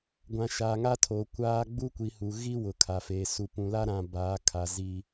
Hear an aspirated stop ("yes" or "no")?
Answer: yes